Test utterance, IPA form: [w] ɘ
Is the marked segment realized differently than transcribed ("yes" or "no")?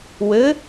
no